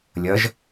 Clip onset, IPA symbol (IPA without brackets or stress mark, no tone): lʲ